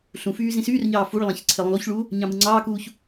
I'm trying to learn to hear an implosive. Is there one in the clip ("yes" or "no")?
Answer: no